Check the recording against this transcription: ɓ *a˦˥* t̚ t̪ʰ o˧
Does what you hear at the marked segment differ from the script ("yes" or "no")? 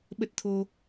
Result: yes